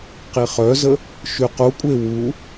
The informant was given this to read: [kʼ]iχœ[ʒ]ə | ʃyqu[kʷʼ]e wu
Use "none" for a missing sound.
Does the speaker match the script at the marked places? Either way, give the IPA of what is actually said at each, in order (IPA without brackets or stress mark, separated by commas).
q, z, kʷʼ